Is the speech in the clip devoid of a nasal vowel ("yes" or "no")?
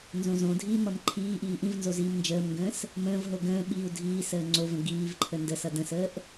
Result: no